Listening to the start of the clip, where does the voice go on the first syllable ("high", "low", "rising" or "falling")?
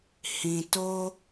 low